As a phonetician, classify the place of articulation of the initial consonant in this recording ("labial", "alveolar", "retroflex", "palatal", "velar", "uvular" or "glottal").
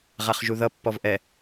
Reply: uvular